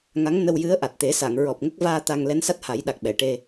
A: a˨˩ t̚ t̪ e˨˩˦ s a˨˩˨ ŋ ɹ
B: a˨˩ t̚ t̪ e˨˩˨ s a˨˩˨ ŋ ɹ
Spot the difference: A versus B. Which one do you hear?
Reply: A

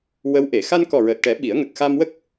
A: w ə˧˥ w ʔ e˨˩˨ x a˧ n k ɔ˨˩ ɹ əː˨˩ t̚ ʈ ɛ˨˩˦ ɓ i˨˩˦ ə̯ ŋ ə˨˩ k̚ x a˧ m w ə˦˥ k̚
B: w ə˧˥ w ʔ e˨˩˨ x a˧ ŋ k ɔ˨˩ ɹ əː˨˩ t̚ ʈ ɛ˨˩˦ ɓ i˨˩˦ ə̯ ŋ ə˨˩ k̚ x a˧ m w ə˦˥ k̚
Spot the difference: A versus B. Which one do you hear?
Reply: A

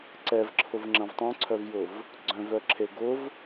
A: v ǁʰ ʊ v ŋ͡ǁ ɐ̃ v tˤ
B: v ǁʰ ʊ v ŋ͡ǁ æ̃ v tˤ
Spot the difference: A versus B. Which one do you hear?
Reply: A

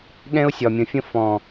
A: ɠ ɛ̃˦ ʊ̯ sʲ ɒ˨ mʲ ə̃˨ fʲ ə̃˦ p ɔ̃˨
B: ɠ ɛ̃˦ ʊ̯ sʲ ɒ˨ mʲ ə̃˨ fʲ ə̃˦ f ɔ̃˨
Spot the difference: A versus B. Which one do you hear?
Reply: B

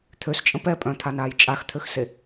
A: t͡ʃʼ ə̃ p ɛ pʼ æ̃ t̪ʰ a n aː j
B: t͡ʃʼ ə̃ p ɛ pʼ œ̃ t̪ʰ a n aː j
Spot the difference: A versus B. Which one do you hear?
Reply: B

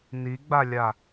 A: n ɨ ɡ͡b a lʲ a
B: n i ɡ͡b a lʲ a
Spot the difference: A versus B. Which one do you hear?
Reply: B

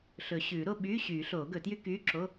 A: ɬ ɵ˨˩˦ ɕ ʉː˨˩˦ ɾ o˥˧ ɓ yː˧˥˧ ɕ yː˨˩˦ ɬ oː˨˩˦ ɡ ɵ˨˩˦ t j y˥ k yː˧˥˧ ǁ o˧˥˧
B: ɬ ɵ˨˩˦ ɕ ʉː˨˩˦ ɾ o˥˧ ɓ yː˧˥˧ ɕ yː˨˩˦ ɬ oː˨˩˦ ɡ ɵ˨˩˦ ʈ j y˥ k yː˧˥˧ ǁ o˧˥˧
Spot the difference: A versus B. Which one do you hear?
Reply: A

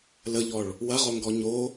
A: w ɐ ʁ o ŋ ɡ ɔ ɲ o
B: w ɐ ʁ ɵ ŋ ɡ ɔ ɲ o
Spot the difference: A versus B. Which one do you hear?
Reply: A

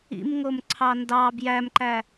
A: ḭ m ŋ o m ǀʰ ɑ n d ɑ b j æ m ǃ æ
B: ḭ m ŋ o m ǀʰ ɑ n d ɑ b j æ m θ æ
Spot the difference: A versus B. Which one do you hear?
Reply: A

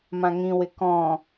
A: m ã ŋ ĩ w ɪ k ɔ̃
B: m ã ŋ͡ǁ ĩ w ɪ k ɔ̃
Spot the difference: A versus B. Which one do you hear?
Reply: A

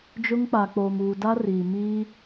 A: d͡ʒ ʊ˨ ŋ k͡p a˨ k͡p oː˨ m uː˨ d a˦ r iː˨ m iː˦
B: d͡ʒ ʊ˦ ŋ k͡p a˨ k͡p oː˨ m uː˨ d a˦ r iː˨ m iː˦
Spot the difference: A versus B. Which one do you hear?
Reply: B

